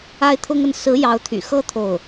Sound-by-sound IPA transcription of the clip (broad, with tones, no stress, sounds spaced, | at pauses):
a˥ ɪ̯ t̪ʰ ʊ˥ ŋ ə˥˩ n s ɹ̩˧˥ j ɑ˧˥ ʊ̯ t̪ʰ y̰˨˩ x ɤ˥ t̪ʰ o˥˩ ʊ̯